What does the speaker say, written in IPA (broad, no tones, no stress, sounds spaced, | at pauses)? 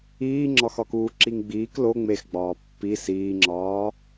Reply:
iː ŋ͡ǁ ɒ x ɒ k uː ǁ i ŋ ɡ͡b iː k l o ŋ͡m e x ɡ͡b ɒː pː i s iː ŋ͡ǁ ɒː